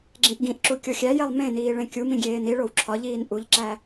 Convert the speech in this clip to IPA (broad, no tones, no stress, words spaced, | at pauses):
ɡ͡ǁẽʔɡĩʔǁu kʲoxʲæjelˠ mẽniː ɭẽkʲumĩ ɡʲeːniɭow ǁʰɒʎiːn ʔuʎǁæ